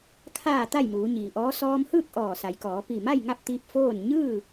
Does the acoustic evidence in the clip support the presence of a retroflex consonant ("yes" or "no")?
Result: no